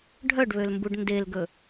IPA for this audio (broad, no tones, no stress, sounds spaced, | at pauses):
ɖʱ œ ɖ β ø l m b u ɖ n d e l ɡ ɵ